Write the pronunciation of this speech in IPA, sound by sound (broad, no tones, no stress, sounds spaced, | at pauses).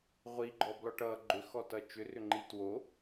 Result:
ʁʷ i ɡ͡ǃ ɔ b l ɔ ʈ ʌ ɡ͡ǃ ʏ x ɔ t ʌ t͡ʃ ʏ r ʏ ŋ͡ǃ i t w o